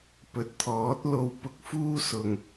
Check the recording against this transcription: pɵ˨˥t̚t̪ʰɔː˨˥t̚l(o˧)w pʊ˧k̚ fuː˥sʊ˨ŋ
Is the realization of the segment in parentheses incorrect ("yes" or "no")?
no